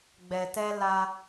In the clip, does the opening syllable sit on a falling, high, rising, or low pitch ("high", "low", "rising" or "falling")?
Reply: low